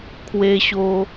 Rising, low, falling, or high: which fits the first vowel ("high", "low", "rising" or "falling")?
high